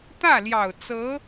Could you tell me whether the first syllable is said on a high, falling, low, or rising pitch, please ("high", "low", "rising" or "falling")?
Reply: falling